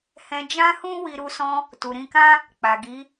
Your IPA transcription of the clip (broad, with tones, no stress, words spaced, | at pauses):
hɛ̃˧ d͡ʒã˦hũ˦ wi˧ɾu˧sɔ̃˧ | tu˨ɾĩ˧kã˦ | k͡pa˨ɡi˨˦